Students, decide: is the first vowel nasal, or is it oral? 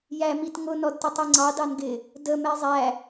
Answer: oral